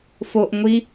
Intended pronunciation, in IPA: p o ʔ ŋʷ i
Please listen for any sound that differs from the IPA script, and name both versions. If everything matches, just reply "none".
p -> f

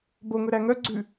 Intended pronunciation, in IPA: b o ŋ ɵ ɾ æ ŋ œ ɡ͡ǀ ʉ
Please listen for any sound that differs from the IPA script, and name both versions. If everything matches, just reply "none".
none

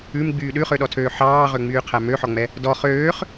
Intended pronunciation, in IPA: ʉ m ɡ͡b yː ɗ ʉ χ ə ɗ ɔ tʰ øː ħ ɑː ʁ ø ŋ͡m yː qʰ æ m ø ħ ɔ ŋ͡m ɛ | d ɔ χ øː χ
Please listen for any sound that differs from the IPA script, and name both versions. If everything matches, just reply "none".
ə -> ø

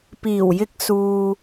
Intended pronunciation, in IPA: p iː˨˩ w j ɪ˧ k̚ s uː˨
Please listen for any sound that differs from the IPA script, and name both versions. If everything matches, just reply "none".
none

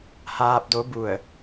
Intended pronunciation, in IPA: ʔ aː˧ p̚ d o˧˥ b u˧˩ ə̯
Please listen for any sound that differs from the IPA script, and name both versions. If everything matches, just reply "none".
ʔ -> h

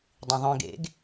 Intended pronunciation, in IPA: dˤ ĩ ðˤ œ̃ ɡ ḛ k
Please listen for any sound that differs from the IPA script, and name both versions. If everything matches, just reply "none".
k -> ɡ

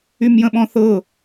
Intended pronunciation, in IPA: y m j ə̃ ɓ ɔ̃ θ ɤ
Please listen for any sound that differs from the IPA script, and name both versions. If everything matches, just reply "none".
none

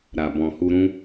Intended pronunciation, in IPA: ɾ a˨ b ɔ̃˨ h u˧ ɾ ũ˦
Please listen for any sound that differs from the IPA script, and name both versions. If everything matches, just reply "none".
none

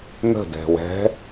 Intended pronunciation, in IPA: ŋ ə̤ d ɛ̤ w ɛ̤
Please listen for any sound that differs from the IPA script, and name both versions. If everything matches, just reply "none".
none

